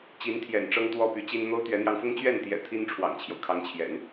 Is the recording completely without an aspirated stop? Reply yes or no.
no